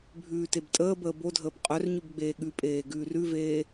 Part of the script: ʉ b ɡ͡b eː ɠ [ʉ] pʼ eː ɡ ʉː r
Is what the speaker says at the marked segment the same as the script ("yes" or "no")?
yes